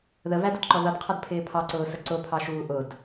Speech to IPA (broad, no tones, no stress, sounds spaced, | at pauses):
ð ə v æ d ə d ǃ ɔ ð ʌ d qʰ ʌ d pʰ ɪː pʰ ɑ ǀ ʊː s ə ǀ ʊ pʰ ɑ ʃ uː ʔ ʊ d